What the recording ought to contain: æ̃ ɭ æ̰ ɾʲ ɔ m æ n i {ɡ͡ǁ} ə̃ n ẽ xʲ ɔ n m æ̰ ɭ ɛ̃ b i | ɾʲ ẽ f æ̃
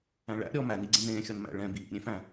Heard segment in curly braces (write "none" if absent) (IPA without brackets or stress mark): ɡ͡ǀ